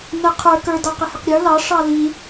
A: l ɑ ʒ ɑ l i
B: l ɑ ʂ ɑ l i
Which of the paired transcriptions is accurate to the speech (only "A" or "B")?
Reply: B